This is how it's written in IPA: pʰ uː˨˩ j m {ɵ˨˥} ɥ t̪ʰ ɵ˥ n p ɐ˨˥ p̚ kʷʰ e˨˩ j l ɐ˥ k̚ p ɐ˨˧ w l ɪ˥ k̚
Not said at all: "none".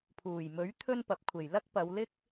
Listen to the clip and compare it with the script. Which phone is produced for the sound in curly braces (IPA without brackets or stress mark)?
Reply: ɵ˨˥